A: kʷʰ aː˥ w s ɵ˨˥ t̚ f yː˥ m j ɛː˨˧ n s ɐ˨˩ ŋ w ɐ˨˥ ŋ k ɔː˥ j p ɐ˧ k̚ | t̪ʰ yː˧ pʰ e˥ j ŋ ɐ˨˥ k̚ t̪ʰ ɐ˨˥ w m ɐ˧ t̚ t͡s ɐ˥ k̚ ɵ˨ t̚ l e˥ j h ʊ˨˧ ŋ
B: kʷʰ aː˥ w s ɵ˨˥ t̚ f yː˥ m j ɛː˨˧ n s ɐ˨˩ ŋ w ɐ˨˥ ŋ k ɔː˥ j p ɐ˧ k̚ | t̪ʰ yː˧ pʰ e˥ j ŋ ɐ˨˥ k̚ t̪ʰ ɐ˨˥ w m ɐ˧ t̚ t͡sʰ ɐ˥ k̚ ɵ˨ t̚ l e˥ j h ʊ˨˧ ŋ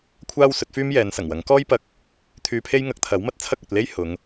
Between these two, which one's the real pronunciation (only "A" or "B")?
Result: B